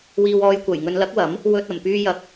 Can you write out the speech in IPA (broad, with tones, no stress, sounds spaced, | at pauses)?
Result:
w iː˨ w ɔː˨ j kʷ ɐ˨˩ j ŋ ɵ˨ n l ɐ˨˥ k̚ w ɐ˨˥ m | w ɵ˨ t̚ ɐ˨˩ m p yː˧ j ɐ˨ k̚